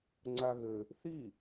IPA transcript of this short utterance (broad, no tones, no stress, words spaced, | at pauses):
ŋ͡ǀaɣɘ | θi